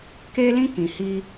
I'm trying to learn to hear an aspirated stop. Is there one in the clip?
no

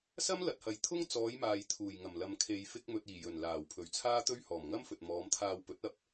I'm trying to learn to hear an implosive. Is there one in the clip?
no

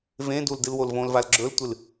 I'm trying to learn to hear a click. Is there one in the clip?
yes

